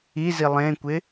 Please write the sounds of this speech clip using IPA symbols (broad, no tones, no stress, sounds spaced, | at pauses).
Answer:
i z i lˠ ẽ kʷ ɪ